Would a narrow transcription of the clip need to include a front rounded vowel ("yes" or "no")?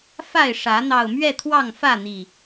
no